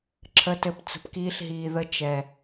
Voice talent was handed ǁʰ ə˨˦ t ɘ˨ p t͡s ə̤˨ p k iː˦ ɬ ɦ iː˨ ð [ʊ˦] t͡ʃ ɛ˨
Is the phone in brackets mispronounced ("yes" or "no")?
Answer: yes